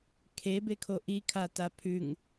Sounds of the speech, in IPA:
kʰebekʰo ʔikʰata pʰʉŋ

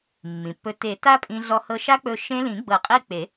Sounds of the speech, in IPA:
mːĩ˩pːɵ˧ te˨˩˦ ta˦˥pʼĩ˧ɮɔ˧ hɤ˧ʃa˦˥k͡pɵ˧ ʃẽ˦˥ lĩ˨˩˦ɡ͡bɤ˨˩˦qʼi˧ k͡pe˨˩˦

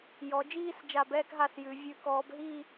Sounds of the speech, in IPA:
jɔ˩˧d͡ʒiː˦˨s d͡ʒa˦˨bɛː˦kɦa˦˨sjʉ˩˧ vʲʉ˧˩˧ kɔː˩˧bɦi˦˨

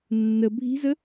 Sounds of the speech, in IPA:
nːə bʱi̤zə

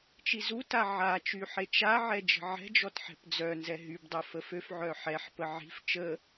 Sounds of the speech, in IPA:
t͡ʃizuta ʕat͡ʃy ħet͡ʃaʕɛ d͡ʒə̤ʕɛ̤d͡ʒɔt ħɛ̤pd͡zœnzɛ ɦybdˤœ fəføfʕœ ħɛħpə ʕi̤f t͡ʃə

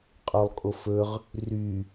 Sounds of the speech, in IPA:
qʼolˠkʼofɵʁ | ry

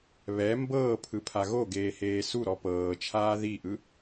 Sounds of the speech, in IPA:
βɛ mbɤːpʰɯpʰa ɣoɡeːheː suɾɔ pɤːt͡ʃʰaː ðiʔɯ

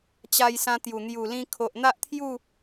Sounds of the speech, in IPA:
t͡ɕa˧jsã˧ t̪ju˨˩ n̪ju˨˩lĩ˧ kʰo˨ʔn̪a˦ʔt̪ʰju˥˧

